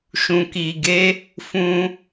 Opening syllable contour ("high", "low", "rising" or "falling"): low